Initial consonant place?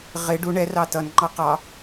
uvular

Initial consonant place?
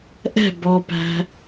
glottal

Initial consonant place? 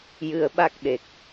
palatal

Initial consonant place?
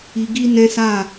velar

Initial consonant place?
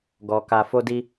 velar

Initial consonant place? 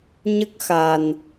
palatal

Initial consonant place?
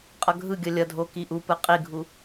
uvular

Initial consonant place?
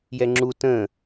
palatal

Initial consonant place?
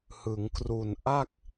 glottal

